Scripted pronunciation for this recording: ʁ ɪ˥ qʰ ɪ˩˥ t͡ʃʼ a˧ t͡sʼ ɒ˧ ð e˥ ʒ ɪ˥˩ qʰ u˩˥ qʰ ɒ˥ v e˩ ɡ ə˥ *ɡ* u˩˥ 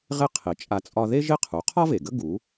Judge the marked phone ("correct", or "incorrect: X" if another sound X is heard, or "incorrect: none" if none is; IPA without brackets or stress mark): correct